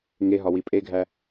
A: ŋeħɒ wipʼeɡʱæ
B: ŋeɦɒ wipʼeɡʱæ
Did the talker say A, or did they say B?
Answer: B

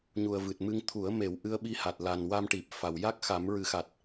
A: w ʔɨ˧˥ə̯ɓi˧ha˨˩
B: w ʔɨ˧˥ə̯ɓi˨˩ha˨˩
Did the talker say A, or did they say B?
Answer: A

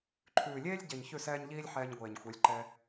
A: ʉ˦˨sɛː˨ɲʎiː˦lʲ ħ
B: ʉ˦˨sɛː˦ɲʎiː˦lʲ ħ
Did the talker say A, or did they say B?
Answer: B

